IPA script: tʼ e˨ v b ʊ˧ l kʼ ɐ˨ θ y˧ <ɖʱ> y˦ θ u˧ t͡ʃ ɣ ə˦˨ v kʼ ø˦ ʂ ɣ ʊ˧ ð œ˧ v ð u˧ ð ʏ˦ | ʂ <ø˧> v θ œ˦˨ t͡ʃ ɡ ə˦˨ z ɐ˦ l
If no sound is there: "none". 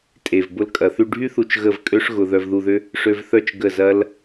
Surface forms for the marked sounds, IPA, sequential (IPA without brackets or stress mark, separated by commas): ɖʱ, ø˧